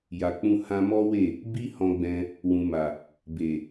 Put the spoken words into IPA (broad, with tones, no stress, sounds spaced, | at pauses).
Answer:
j a˨ k͡p ũ˧ h ã˧ m ɔ˦ w e˦˨ | b i˦ h ɔ̃˧ ɡ͡b ɛ̃˧ | w ũ˨ m a˨ | b e˨